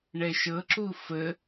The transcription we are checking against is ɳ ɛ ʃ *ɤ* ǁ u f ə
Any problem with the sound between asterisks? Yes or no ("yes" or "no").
no